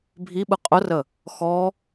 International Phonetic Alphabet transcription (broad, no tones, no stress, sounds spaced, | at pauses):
bʱ i ɓ ɯ qʼ ʊ r ə | x ɔ